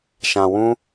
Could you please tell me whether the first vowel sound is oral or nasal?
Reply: nasal